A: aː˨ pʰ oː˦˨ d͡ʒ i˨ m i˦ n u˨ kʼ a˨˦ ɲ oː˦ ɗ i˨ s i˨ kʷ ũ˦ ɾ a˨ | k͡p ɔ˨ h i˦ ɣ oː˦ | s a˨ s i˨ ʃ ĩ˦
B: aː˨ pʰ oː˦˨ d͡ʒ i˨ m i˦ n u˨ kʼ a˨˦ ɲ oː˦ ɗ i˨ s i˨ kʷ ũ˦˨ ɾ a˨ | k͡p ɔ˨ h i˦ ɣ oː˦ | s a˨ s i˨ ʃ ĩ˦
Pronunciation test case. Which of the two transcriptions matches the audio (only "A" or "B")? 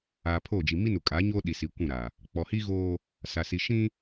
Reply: B